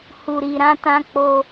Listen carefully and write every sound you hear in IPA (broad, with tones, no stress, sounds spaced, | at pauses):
h u˨ ɾ i˨ ɾ ã˧ t ã˧ k͡p o˧